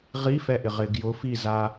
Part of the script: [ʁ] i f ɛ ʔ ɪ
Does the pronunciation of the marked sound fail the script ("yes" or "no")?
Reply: no